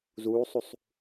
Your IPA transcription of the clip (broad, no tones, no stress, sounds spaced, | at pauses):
z uː sˤ u sˤ